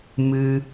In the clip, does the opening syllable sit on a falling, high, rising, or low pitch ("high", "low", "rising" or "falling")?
high